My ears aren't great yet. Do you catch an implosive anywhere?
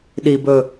yes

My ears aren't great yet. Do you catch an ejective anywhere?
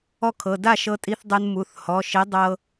yes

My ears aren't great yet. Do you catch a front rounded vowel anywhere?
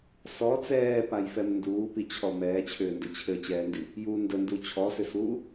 yes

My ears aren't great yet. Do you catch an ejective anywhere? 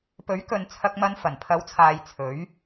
no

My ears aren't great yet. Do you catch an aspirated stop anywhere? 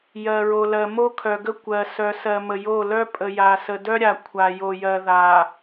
yes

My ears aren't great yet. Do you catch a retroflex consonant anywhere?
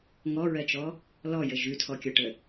yes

